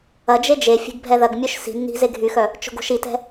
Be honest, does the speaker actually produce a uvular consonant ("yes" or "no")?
no